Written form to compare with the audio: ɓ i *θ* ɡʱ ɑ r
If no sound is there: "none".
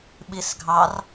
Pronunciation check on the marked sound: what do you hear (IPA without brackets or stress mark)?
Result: s